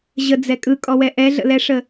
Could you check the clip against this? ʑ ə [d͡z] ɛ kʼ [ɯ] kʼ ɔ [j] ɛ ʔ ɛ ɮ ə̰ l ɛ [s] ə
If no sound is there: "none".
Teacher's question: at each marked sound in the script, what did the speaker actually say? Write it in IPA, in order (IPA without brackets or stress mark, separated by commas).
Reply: d͡z, ɯ, w, ʂ